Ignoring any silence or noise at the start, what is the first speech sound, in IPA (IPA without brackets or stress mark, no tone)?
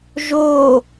ʒ